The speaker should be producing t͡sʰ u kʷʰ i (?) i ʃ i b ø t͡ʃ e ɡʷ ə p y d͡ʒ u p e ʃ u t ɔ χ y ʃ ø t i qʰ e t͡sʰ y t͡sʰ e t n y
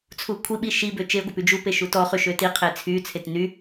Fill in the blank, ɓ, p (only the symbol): ɓ